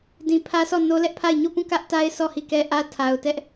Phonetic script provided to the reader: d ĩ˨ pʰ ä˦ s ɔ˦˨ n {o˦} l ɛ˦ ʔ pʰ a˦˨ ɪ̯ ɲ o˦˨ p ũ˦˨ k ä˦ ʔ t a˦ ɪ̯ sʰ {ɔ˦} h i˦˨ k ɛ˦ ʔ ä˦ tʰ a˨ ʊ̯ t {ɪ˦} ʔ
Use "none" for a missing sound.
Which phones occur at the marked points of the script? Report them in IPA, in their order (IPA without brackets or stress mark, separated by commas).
o˦, ɔ˦˨, ɛ˦